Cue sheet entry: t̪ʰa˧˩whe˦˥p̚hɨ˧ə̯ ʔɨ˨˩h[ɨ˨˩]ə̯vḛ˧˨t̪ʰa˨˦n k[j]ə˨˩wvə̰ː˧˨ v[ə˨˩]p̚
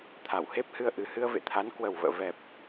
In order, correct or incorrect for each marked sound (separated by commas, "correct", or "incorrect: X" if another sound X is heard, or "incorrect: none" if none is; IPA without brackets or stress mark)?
incorrect: ɨ˧, incorrect: w, incorrect: ɛ˨˩